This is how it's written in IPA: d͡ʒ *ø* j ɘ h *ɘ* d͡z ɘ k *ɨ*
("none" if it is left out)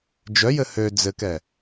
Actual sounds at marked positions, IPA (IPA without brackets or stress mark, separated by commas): œ, ø, ɛ